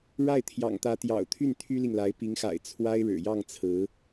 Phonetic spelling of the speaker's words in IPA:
ɻ a˥˩ ɪ̯ t̪ʰ j ɑ̰˨˩ ŋ t̪ ä˧˥ t̪ j ɑ̰˨˩ ʊ̯ t̪ʰ y˥˩ n t̪ʰ y˥ l i˨ ŋ l a˧˥ ɪ̯ p i˧˥ ŋ x a̰˨˩ ɪ̯ t͡sʰ w a˥ ɪ̯ ɻ ɻ̩˨˩ j ɑ˥˩ ŋ t͡sʰ ɹ̩˧˥

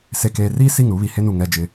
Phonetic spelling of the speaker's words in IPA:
s e˨ k eː˨ r iː˦ s i˦˨ ŋ ɾ u˨˦ β i˨ h e˦ n u˨ ŋ ɛ˦ d͡ʒ ɪ˦

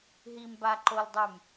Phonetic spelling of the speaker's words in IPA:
ɦ i m b a ǃ o l dˤ y m

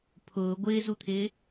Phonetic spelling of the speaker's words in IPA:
pʰ ʊː ɡʷ ɪː z u t̪ʰ ɪː

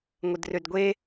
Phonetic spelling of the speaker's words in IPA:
ŋʷ ə d r ø d ɡʷ e

